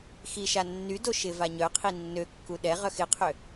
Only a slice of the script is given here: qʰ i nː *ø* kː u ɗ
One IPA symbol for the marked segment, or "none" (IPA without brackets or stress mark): ø